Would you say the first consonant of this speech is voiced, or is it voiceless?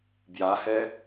voiced